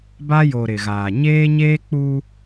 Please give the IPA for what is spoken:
ba˦jo˨ ɾɪ˨ɣaː˨ ɲeː˦ɲeː˦k͡pu˦

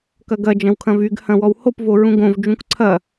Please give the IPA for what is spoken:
kɐɡɐ d͡ʒɐ̃wkʰɐ̃vyɡ hɐ̃wɔwhop voɹũɡõv d͡ʒũkǀʰɐ

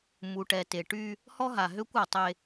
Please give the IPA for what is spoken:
mu˨ʈɛ˨ te˨ʈy˦ | hɔ˦ɦa˨ɦø˦kʷ ɔ˨tˤe˦

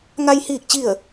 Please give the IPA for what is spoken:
ŋa˧j hiː˥˨k̚t͡ɕi˥˨ə̯

